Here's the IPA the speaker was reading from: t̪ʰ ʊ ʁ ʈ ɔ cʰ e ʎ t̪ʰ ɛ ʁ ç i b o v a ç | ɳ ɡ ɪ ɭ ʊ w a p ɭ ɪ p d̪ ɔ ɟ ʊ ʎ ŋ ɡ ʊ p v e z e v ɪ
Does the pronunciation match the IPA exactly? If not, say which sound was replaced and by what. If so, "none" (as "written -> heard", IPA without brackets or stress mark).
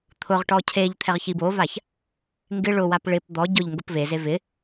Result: ɳ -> ŋ